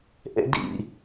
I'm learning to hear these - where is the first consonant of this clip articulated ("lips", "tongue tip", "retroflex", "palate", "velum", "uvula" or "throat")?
throat